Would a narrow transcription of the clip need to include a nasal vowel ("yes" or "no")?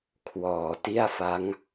no